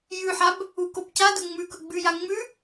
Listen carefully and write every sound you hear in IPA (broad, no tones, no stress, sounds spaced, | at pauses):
j ʉ ħ a b | u k o b c a d ɵ ŋ͡m ʉ k ɵ ɡ͡b ʉ j a ŋ͡m ʉ